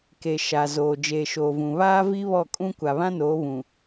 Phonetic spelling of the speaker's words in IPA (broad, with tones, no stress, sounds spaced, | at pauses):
k e˨ ʃ a˨ z oː˨ d͡ʒ eː˨ ʃ oː˨ v ũ˨ β aː˦ v i˦ β ɔ˦˨ kʼ ũ˦ kʷ a˨ β ã˦ n oː˨˦ β ũ˨